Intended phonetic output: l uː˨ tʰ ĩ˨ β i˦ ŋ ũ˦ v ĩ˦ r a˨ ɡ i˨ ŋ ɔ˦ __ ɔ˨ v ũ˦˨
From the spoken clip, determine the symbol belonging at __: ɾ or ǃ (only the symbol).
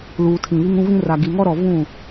ɾ